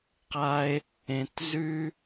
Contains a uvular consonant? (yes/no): yes